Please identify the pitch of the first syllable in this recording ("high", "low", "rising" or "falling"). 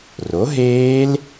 rising